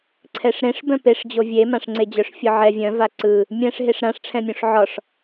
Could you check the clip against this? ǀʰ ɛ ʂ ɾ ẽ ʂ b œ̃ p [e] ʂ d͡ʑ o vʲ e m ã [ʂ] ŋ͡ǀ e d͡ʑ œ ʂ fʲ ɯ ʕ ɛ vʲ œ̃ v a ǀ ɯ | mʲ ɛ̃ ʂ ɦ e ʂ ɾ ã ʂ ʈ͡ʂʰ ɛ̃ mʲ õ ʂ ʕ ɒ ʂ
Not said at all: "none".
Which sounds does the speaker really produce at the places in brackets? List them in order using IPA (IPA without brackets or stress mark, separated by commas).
e, ʂ